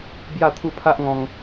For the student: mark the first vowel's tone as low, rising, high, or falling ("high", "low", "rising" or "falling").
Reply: falling